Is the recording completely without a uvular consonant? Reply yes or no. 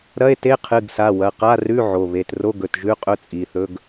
no